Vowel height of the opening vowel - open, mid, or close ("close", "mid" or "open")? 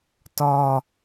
open